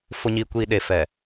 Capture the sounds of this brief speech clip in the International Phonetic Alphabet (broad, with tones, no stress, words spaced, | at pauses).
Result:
fʊ˨ɲiː˨ kʷiː˨ ɗe˨fɛ˨